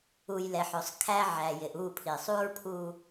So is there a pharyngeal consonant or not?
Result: yes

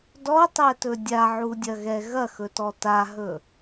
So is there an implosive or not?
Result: no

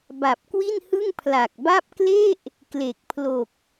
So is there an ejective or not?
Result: no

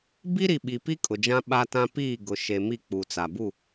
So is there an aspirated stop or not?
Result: no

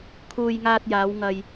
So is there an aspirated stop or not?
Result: yes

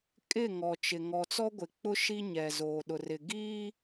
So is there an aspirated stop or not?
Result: no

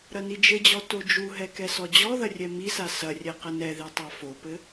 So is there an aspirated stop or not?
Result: no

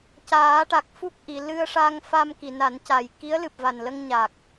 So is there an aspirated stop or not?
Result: no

